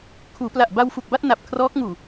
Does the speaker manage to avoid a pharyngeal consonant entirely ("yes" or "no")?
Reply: yes